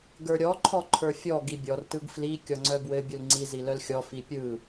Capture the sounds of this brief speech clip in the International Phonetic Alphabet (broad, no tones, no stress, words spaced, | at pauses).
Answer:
ɡə˞ɾʲɔ ǃʰɔǃʰə˞fʲɔ ɡibʲɔr tɯɡfli kʲɔŋ͡ǀœbwɘ bʲulŋ͡ǀi zilœlxʲɔ fipʲɯ